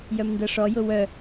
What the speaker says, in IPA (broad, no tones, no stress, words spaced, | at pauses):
jœmndɤʂɔ jʊwœ